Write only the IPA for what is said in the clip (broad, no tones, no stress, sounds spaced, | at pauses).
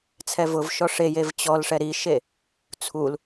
t͡sʰ ɛ v ʊ v ʃ ɔ ʂ e j e v t͡ɕ ɔ l ʂ ɛ ɾ i ʃ e | t͡sʰ u l